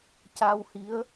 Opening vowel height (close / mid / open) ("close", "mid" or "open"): open